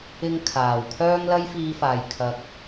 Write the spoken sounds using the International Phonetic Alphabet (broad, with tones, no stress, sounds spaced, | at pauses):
ɪ˧ ŋ kʰ aː˨˩ w kʰ œː˥ ŋ l ɐ˥ j f iː˧ f aː˨˩ j kʰ ɐ˨˥ k̚